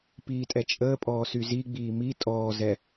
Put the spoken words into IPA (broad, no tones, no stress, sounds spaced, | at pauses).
p iː tʼ ɛ t͡ʃʼ əː pʼ ɔː s y z i ɡ͡b iː m i tʼ ɔː z ɛ